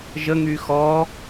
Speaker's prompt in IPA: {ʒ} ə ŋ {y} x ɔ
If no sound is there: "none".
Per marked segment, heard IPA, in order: ʒ, y

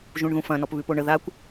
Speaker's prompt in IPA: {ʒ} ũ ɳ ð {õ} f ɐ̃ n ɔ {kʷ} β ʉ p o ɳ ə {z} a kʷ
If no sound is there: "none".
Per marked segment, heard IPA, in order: ʒ, ũ, p, ð

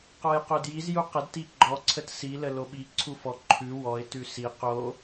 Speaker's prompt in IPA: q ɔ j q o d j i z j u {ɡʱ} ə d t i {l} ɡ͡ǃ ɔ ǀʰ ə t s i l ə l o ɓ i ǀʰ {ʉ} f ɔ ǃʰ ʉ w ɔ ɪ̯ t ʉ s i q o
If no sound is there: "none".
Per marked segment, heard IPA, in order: q, none, u

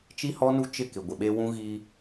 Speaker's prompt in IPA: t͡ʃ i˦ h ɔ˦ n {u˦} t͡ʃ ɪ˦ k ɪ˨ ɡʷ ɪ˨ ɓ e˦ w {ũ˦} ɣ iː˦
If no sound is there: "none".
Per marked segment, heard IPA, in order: u˦, ũ˦

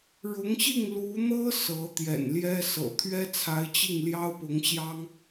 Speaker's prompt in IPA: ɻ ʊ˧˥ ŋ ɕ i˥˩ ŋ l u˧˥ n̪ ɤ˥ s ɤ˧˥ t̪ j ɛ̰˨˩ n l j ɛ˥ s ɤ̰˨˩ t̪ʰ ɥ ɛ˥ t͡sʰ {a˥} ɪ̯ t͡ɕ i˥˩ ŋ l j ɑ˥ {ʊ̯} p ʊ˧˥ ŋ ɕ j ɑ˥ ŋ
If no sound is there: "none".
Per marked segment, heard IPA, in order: a˧˥, ʊ̯

